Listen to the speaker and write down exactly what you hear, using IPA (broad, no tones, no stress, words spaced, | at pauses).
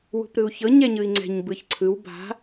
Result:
wṳpɾɯu̯çɤ ɲɛɲɯi̯ŋ͡ǀɛ̤ɲ bɯçǀʰɯw ba̤